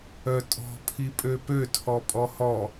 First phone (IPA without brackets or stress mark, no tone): œ